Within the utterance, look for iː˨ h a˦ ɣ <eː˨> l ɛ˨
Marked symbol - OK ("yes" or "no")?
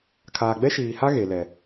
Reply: no